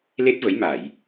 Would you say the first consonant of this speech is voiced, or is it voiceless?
voiced